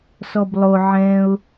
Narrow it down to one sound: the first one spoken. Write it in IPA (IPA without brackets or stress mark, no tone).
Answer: s